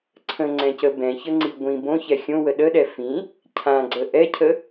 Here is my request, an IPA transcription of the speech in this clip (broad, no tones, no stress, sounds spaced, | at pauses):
ǀʰ ə̃ ŋ͡ǀ ɛ̃ c ə b ɛ̃ ç ə ŋ͡ǀ i ɡʷ ĩ b õ ç ɛ xʲ õ w ə ɗ ə ɗ ɛ f ĩ | cʰ ã ɡ͡ǀ ə ʔ ɛ cʰ ə